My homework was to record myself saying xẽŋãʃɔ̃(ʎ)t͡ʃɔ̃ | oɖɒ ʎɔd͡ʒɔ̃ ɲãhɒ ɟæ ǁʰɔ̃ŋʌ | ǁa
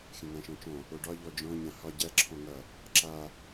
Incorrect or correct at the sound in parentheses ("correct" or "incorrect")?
incorrect